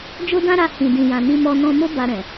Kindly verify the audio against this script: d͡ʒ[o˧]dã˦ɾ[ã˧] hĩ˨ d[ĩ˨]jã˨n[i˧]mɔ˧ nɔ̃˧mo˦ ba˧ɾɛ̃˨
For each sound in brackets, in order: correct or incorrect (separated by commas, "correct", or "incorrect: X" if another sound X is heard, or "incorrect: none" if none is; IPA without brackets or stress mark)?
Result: incorrect: o˦, incorrect: a˧, correct, correct